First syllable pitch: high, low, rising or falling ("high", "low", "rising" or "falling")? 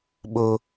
high